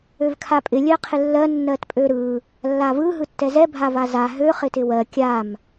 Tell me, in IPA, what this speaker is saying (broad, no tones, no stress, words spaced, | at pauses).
øvkʰapʼɪ lʲɜqʰɪlːɜ nːɜtpʼøɾɯ | lːavɯ ɦɯtːɛzɛ bʱavaza ɦø χɪtɪwɜ kʲam